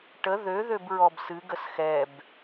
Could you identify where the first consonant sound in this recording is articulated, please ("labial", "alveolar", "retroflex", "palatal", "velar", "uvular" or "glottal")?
retroflex